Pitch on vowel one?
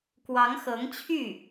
rising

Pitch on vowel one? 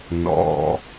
high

